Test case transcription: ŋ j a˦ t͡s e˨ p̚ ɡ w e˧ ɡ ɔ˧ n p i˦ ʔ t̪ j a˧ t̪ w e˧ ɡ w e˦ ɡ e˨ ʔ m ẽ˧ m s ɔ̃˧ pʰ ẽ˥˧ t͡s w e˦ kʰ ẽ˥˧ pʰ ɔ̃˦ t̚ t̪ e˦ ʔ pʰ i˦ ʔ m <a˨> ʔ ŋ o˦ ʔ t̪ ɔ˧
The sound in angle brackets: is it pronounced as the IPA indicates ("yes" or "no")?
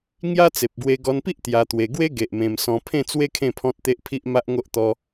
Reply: no